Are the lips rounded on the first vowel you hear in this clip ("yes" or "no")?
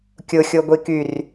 yes